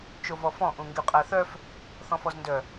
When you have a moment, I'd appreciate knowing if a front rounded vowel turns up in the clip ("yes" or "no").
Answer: yes